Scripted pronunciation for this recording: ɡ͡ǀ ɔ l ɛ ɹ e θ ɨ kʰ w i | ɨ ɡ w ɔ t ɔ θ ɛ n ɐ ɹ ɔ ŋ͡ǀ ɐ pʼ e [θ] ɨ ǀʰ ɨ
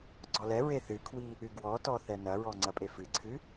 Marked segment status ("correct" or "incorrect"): incorrect